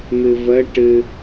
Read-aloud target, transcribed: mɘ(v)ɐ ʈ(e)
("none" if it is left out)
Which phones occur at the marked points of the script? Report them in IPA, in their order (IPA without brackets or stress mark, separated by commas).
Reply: v, ɘ